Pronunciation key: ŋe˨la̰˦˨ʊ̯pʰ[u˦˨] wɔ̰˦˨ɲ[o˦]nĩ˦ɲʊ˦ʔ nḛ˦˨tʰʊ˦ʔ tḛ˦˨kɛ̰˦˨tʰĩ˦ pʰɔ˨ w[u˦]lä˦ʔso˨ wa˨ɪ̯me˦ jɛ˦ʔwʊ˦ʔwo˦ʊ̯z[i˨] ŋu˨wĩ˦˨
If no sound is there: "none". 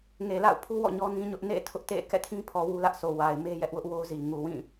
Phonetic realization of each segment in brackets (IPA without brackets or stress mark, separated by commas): u˦, ɔ˦, u˦, i˨